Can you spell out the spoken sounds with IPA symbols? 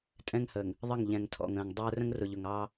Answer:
tʼ ɛ̃˦ ŋ h əː˨ ŋ | ðˤ ə˦˨ ŋ ʎ ɛ̃˨ ŋ tʰ ɔ̰˨ ŋ ə̃ː˨ ŋ dˤ əː˦ r ə̃˦ ŋ r ʊ˨ ʎ ʊ˨ ŋ ɑː˦

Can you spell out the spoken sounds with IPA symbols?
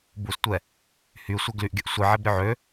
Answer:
b u s tʷ ɛ | h y sʷ ɛ ɡ l y ʔ ɡʲ ə ʔ sʷ i ʕ ɛ b ɾʲ ø ʕ ø

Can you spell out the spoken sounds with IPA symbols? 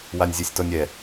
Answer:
w a nʲ zʲ ɛ sʲ t ɔ nʲ ɛ

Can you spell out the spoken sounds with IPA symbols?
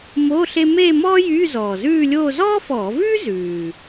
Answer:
m o˧˥˧ ɬ e˥ m eː˥˧ m ɔː˥ j yː˧˥˧ z ɔː˨˩ z ʉː˥˧ lʲ oː˥˧ z ɔː˥ f ɔː˧˩˧ v ʉː˥ z ʉː˨˩

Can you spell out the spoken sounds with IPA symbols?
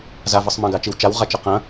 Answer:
z a v ə sˤ m ɐ̃ ɡ a t͡ʃ i w t͡ʃ a w ʁ a t͡ʃ ɐ q ɐ̃

